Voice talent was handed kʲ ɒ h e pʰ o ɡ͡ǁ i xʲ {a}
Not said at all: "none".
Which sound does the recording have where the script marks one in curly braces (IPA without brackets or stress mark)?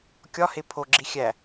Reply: æ